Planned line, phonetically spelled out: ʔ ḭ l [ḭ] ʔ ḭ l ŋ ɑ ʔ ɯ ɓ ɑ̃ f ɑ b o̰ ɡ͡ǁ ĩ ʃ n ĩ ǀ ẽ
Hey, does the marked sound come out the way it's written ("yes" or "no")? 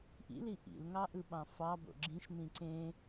no